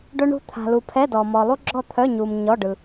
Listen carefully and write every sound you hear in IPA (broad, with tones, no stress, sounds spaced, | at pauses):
ɖ œ˥ ɳ ṳ˥ t̪ʰ a̤˨ l u˨ pʰ ɛ˧˥˧ d ɔ˨ m ɔ˨ lˠ u˥ ɡ͡ǁ ɔ˥˨ t̪ʰ œ˧˥˧ ɲ u˨ m ɲ ɔ˧˥˧ ɖ ɯ˨